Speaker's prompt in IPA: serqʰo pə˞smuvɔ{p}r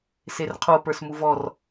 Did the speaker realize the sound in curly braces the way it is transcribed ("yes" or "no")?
no